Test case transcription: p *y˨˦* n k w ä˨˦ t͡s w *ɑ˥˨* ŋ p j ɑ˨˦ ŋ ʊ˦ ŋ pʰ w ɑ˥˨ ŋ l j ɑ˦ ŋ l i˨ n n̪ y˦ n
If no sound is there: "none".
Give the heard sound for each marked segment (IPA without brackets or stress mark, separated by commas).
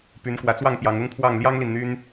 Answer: y˨˦, ɑ˥˨